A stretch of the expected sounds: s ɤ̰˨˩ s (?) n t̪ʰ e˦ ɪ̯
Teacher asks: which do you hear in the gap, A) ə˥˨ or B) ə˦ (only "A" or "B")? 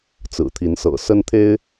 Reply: B